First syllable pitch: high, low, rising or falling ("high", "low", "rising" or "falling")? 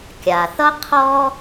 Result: low